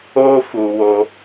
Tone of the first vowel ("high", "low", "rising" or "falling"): high